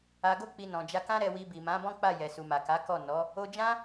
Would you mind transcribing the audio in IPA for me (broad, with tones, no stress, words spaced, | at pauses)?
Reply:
a˨ɡo˧k͡pi˨ nɔ̃˨d͡ʒa˧kã˦ ɾɛ˧wi˧bi˨ mã˨˦bɔ̃˦k͡pa˦˨ jɛ˨su˨ma˨ ka˨˦kɔ˦˨ nɔ˨˦ | o˧ d͡ʒã˦